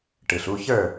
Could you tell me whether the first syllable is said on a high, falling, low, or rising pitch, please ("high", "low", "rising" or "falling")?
low